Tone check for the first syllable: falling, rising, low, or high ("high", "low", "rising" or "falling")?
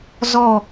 falling